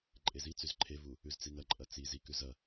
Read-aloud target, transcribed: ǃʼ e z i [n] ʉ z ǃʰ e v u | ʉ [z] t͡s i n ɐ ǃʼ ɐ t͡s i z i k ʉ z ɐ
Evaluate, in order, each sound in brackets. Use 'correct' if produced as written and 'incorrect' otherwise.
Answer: incorrect, correct

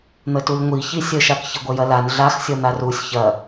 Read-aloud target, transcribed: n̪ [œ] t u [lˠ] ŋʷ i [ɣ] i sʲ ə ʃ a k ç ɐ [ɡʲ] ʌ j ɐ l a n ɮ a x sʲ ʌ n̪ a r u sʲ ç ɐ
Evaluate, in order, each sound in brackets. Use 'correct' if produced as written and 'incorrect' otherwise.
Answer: incorrect, incorrect, incorrect, incorrect

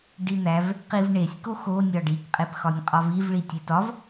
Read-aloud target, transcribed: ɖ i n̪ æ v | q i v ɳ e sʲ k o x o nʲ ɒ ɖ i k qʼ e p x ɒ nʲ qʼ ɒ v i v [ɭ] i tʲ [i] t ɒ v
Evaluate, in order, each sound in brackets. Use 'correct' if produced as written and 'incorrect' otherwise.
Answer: correct, incorrect

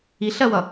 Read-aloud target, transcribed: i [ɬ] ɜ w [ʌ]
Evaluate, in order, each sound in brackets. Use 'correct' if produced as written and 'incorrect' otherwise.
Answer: correct, correct

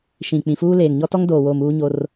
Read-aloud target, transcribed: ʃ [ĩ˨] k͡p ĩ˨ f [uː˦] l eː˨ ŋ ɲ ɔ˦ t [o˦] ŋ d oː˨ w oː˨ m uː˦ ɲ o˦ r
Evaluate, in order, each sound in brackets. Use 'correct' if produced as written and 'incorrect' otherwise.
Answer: correct, correct, incorrect

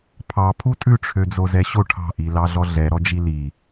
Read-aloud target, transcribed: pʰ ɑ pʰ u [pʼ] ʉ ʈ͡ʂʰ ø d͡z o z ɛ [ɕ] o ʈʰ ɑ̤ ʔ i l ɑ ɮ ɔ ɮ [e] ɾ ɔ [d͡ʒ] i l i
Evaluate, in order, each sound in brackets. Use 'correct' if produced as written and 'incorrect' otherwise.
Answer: incorrect, correct, incorrect, correct

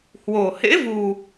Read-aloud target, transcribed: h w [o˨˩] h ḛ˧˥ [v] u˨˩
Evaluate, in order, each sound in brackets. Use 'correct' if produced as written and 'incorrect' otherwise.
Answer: correct, correct

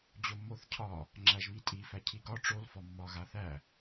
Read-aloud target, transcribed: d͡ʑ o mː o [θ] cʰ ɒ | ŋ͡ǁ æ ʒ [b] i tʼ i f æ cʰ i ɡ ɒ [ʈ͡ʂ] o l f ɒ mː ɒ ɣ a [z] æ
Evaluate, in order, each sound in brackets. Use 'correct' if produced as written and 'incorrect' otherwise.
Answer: correct, incorrect, correct, incorrect

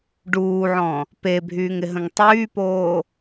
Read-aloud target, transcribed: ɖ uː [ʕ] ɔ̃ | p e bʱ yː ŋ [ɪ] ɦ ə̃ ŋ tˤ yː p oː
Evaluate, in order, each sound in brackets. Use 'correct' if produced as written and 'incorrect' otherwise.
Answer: correct, correct

